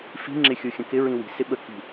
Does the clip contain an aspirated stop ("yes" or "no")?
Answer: no